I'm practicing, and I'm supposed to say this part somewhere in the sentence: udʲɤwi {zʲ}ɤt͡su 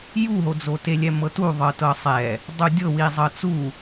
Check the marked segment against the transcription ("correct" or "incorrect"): incorrect